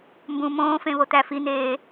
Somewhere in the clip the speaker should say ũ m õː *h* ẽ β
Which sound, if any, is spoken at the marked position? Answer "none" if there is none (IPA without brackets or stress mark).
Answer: f